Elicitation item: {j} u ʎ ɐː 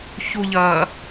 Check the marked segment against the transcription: incorrect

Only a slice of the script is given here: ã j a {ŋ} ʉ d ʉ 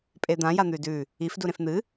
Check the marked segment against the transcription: incorrect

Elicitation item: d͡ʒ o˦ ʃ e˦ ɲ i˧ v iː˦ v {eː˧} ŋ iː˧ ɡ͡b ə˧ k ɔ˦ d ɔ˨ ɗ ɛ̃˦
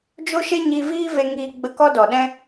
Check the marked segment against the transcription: incorrect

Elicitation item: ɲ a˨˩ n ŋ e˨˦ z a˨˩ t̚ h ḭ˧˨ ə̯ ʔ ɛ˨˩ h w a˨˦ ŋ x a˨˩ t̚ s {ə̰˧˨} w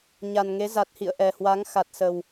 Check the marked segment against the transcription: incorrect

